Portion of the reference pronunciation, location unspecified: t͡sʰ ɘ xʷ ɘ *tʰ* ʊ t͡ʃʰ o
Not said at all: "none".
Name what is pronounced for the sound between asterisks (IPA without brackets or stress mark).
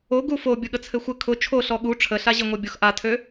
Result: kʰ